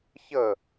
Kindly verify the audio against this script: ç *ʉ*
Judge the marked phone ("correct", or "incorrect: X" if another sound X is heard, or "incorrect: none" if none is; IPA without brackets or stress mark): incorrect: ə